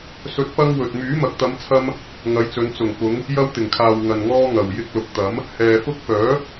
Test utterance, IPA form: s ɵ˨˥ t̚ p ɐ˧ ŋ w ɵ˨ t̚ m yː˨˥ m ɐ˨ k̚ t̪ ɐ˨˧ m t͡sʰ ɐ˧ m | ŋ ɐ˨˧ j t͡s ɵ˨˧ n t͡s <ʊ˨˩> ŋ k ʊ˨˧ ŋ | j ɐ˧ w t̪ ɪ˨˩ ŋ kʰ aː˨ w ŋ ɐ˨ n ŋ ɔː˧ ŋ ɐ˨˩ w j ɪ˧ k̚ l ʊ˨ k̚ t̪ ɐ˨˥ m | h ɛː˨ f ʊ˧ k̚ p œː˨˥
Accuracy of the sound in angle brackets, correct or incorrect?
correct